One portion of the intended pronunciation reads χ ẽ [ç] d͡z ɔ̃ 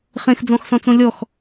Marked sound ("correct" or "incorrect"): incorrect